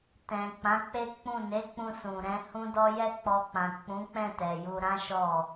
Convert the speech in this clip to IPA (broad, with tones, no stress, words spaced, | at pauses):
tɛ̃˨ k͡pã˨˦k͡pe˦k͡pũ˦˨ ne˨˦k͡pũ˧ sũ˨ɾɛ̃˨˦hũ˦dɔ˦ jɛ˦k͡pɔ˧k͡pã˨ k͡pũ˨˦k͡pɛ̃˦˨ tɛ˨ju˧ ɾã˦ʃɔ˦˨